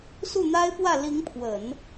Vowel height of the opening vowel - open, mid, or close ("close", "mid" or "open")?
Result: close